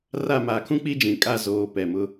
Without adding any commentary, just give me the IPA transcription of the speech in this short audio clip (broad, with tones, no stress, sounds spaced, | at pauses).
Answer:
r a˦˨ m aː˨ kʰ ũ˦ k͡p i˦ d͡ʒ ĩ˨ kʼ a˦˨ z oː˨ p ɛ˨ m ʊ˦